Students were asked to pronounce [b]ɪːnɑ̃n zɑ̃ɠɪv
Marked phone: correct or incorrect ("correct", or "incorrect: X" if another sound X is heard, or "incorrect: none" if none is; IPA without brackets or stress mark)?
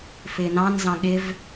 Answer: incorrect: f